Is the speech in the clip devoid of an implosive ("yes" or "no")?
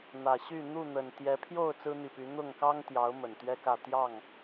yes